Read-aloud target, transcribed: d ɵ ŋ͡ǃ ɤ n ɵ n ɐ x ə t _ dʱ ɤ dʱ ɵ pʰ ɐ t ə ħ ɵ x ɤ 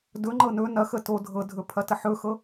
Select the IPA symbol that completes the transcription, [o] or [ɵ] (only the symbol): o